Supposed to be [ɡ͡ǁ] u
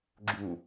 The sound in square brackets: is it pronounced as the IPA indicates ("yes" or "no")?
yes